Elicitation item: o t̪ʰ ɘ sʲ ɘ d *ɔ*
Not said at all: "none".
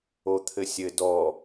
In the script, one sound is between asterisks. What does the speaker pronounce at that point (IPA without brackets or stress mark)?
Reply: ɔ